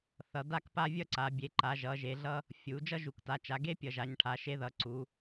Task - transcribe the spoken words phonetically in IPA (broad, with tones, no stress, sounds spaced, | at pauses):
θ ʌ˩˧ d a˦ k p a˦ vʲ ʌ˦ ǀ a˩˧ bʲ e˩˧ ǃ a˩˧ ʒ ʌ˩˧ ʒ e˩˧ ɮ ʌ˦ | fʲ u˩˧ d͡ʒ ʌ˦ ʒ u˩˧ k t a˩˧ t͡ʃ a˩˧ ɡ e˦ pʲ ʌ˩˧ ʒ a˩˧ ɲ ʈʰ a˩˧ ʃ e˦ ð ʌ˩˧ ǀ u˩˧